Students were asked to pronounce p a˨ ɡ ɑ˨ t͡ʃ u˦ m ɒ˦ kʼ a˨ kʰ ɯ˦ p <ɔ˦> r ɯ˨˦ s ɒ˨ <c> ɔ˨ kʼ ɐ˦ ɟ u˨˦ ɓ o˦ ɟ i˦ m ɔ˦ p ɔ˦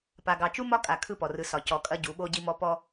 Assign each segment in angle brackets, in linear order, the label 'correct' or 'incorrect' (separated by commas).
incorrect, correct